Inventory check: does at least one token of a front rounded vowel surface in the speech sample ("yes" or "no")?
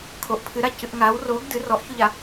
no